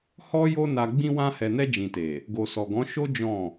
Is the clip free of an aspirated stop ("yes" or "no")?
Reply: yes